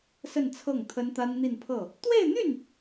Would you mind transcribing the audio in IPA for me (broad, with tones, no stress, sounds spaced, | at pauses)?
s ə˥˧ n t͡sʰ ɤ˥˩ ŋ t̪ʰ ə˥ n t̪ a˥ n n̪ i˥˧ n pʰ ɤ˥˩ | t̪ w e˥˧ ɪ̯ n̪ y˥˩ n